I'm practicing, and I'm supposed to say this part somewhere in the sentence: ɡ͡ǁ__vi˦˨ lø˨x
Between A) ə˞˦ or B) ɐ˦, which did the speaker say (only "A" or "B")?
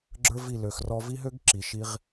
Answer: A